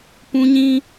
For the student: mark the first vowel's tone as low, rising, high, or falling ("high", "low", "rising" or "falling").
high